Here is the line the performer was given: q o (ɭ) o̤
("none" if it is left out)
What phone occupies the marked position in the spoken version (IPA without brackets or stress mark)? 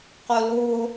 l